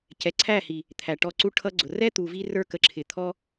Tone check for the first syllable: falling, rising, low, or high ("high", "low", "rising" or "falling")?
low